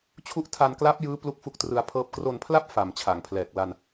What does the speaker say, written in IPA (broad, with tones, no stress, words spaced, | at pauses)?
t͡ɕʰu˦˥ʔtʰa˧nkla˦˥p̚ jɯː˦˥ plu˥˩k̚fu˥˩k̚trɯ˧a̯pʰɤː˥˩p̚ kro˧npʰla˥˩p̚ fa˨˩mt͡ɕʰa˩˦ŋpʰlɛː˨˩k̚ la˧n